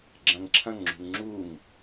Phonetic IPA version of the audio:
ɡ͡ǁ ɐ̃ ŋ ǁʰ ɐ̃ ŋ ŋ͡ǁ ṳ ŋ ŋ͡ǁ u ŋ

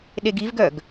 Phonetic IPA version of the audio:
ɗ e ɡ i v ɡ œ ɡ

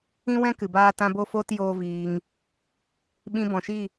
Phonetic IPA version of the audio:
ĩ˦ w ɛ̃˦ k ɨ˨ b aː˦ t ã˦ b o˦ f oː˦ t j oː˦ v iː˧ ŋ | ɓ ĩ˧ b ɔ̃˨ ʃ i˦˨

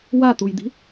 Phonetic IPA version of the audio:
w a t̪ u j d̪ i̤

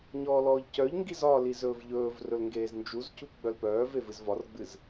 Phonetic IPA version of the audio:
ɲ ɔː l ɔː ʎ c œ ʎ ŋ ɡ i z ɒ l i z ɵː v ʎ ɵː v r ɵ l ŋ ɡ eː z n d͡ʒ u z c u p ɡ͡b œ l p œː v e v ɨ z v ɒ r ɡ͡b ɨ z

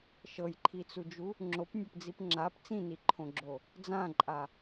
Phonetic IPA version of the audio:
ʃ ɤ j ǃʰ i t͡s u d͡ʒ u | ŋ͡ǁ o p nʲ ɤ p d͡z i p ŋ͡ǁ a p t͡s ĩ n i ǃʰ õ ɡ͡ǁ o | d͡z ã ǃʼ a

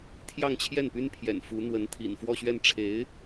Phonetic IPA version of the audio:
t̪ʰ j ɑ˥˧ ŋ t͡ɕʰ j ɛ˥˩ n p y˥ n pʰ j ɛ̰˨˩ n f u˧˥ n̪ w ə˧˥ n t̪ʰ ḭ˨˩ n f w ɔ˥˧ ɕ ɥ ɛ˥˩ n ʈ͡ʂʰ e˧˥ ɪ̯

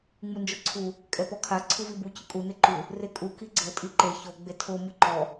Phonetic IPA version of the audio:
ŋ͡m u n d͡ʒ o ǀʰ u | kʼ ɛ p ɔ kʰ a ǀʰ u v i b u c ɯ kʼ u n e ǃ u | r e kʼ u k i ɡ͡ǀ ɤ tʼ i ǃ e ç o ɡ͡b e tʰ o m ɯ ǃ ɔ

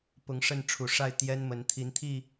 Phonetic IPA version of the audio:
p ʊ˨˦ ŋ ʂ ə˥˨ n ʈ͡ʂʰ u˨˩ ʂ a˥˨ ɪ̯ t̪ j ɛ˦ n m ə˨˦ n t̪ʰ i˨˦ n t̪ʰ i˥˨

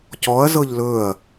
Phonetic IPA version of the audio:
c ɔ ɐ̯ z ɤ ʎ l ɵ ɐ̯

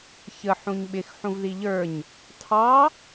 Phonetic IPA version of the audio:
ç ə ħ ũ ɲ ɓ ɪ x ħ ũ v ð i ʎ ə˞ ɲ | tʰ ɑ

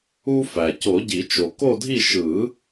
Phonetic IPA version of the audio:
u˦ f æ˩ c o˨˩˦ ɟ i˨˩˦ t͡ʃ o˩ k o˦˨ dʱ i˦˨ ʃ ɯ˨˩˦

